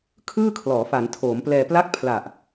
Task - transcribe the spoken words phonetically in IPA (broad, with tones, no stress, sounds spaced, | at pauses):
kʰ ɯː˥˩ kʰ l ɔː˩˦ f a˩˦ n tʰ oː˩˦ m p l ɛː˧ p l a˥˩ k̚ pʰ l a˨˩ ʔ